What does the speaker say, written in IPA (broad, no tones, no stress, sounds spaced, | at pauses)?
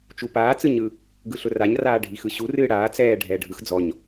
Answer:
t͡ʃ u p aː t͡s ɯ ɲ ɯ | ɡ ɯ ɬ ʊ r a ɲ r aː ɖʱ i x ɯ ɕ u r ɨː ɽ aː t͡s ɛː ɖʱ ɛː ɖʱ ɯ x d͡z ɔ ɲ